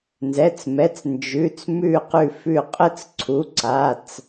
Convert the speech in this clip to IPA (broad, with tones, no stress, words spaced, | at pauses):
nzɛ˩˧˩t͡smɛ˩˧˩t͡s nd͡ʒʉ˩˧˩t͡smʉ˧˩ qʉ˧˩fʉ˧˩qʼə˥˩t͡sǀʰu˩˧˩ ǀa˩˧˩t͡s